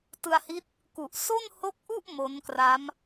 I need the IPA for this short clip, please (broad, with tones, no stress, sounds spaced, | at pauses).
t ɯ˧ a̯ h i˦˥ t̚ | k u˨˩ ʔ s o˥˩ n h o˦˥ k̚ ʔ u˥˩ ʔ m o˦˥ n k r a˦˥ m